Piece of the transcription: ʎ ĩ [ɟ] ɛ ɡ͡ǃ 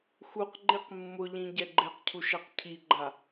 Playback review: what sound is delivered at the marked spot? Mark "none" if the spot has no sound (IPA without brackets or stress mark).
ɟ